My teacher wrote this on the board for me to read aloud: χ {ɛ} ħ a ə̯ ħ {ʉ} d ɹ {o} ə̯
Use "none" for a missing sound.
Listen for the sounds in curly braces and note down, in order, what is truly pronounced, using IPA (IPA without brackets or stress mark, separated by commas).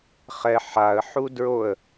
ɛ, u, o